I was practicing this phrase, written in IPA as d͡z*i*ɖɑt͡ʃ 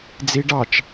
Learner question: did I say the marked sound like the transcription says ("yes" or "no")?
yes